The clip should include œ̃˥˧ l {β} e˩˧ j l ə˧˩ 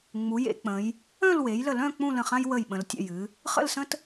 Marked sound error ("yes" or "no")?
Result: yes